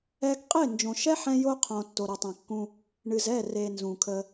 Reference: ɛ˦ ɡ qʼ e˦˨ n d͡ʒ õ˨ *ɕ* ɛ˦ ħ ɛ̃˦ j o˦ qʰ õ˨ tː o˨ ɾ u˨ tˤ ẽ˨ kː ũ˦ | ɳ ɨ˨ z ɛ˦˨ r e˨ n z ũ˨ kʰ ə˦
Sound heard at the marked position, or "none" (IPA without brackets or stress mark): ʃ